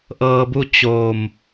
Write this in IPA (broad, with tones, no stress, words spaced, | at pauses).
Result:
ʔɤː˧bu˥˨t͡ɕoː˧˩m